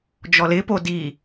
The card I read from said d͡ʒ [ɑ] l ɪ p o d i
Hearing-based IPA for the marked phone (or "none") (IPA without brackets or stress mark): ɔ